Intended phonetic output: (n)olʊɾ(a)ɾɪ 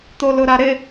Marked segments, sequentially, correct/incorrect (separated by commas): incorrect, correct